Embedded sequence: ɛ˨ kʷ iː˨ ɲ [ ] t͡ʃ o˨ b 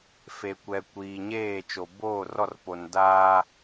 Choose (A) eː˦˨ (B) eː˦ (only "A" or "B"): A